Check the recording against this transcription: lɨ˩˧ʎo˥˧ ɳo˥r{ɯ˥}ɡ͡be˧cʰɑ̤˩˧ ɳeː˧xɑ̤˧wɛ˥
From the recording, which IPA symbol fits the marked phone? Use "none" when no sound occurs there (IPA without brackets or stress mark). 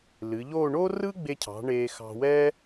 ɯ˥